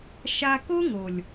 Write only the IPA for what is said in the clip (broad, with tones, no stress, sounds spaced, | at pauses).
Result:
ʃ a˧ k o˦ ŋ o˨ lʲ